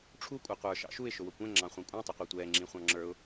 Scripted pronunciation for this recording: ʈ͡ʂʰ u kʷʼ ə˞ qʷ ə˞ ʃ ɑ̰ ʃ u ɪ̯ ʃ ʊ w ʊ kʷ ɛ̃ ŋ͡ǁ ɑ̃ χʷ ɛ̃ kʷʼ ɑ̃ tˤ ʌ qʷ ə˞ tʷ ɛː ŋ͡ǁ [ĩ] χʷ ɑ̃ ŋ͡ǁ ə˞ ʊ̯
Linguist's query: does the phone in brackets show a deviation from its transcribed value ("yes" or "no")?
no